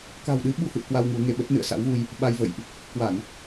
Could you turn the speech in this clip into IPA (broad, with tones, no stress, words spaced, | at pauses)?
ka̤˨˩wɗɨ˨˦ɓṳ˨˩hɨ̰˧˨ə̯ kwa˧w ŋu˨˦ə̯ŋe˧ ɓə˦˥t̚nɨ̰˧˨ə̯sa̰˧˥wɣu˧j | ɓa˧jvə̰˧˨jʔ | kwa˧˩˨n